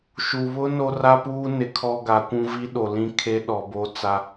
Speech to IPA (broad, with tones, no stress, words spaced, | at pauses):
ʃu˨ βʊ˦ no˦ra˦puː˦nɪ˨ kʰɔ˦ɡa˨˦kʷũ˦ vi˦ɗo˨lĩ˦ kʰe˦ɗɔ˨bo˦ t͡sa˦